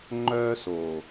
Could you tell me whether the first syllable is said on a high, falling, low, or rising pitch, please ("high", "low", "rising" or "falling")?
high